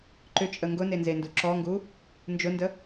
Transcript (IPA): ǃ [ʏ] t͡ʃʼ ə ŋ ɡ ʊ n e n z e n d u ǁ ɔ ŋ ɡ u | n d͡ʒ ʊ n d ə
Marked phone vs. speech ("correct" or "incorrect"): correct